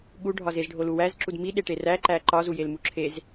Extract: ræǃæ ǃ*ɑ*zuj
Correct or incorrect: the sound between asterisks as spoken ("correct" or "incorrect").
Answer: incorrect